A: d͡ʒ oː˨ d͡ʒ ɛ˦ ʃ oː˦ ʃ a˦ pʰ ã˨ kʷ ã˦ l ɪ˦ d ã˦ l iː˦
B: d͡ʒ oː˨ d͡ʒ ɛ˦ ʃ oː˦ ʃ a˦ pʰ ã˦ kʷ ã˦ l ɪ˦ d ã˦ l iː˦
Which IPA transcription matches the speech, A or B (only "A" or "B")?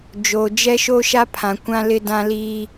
A